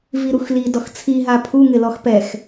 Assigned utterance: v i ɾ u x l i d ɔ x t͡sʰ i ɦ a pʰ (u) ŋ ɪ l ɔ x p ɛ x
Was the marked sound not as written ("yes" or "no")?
no